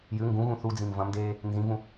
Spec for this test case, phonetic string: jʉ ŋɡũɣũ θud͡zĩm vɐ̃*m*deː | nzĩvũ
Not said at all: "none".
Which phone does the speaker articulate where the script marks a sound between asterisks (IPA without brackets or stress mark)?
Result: m